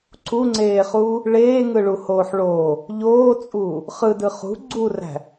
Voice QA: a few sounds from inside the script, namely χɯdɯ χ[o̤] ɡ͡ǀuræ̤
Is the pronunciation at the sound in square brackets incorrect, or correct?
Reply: incorrect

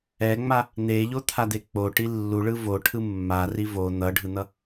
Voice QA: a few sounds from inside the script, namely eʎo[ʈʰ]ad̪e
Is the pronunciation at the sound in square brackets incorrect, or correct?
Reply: incorrect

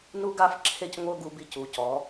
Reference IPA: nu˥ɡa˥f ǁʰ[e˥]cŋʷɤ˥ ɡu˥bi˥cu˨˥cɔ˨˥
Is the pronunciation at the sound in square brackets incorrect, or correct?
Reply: correct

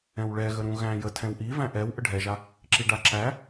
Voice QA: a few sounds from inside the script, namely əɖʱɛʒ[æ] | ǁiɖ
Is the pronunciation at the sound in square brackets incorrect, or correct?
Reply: incorrect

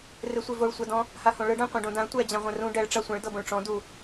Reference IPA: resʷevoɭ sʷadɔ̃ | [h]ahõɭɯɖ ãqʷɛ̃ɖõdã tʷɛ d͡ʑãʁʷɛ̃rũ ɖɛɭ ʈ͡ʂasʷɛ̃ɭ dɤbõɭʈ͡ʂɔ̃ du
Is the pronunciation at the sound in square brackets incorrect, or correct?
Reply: correct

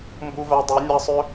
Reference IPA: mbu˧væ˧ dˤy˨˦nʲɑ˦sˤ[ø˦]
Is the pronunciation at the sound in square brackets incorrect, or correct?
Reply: correct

